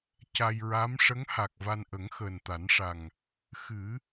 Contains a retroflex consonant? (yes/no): yes